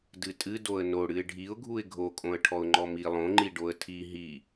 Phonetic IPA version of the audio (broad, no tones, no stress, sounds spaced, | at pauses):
d ɨ tʼ ɨ d o ə̯ n o ɽ ɨ ɪ̯ ɖʱ i ʊ̯ ɡʱ u ɪ̯ ɡʱ o kʼ õ ə̯ ʈʰ ɔ ʊ̯ ŋ͡ǃ ɔ m i lˠ õ ŋ͡ǃ i ɖ o ə̯ tʰ i ɦ i